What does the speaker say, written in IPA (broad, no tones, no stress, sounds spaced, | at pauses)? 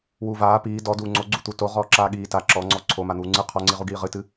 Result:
w uː v aː p iː d ɔ d uː ŋ͡ǀ o ɡ͡ǀ u t̪ u t o ʁ ɔː ǁ aː ɠ iː t a ǁ ɔ ŋ͡ǀ ɔ ǀʰ o m a n̪ uː ŋ͡ǀ ɨ qʰ ɔ ŋ͡ǀ i ʁ u ɡ iː ʁ ɨ t ɨ